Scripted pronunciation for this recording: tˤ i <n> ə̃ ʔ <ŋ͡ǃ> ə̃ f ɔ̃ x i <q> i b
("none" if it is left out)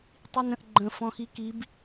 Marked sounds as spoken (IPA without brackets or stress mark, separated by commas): n, ɡ͡ǃ, k